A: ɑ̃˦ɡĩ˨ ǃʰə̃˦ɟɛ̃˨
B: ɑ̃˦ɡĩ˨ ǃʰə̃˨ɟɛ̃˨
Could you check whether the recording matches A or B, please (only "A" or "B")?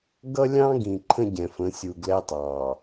A